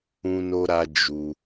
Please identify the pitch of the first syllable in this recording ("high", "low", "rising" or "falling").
high